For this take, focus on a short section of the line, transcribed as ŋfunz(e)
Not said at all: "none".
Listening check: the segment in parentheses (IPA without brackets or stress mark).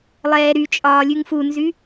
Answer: y